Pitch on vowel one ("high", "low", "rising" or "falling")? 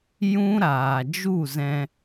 high